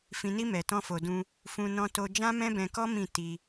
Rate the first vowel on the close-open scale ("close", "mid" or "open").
close